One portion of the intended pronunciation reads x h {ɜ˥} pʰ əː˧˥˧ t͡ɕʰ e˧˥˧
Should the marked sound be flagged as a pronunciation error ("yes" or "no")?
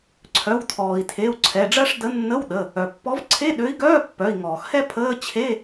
yes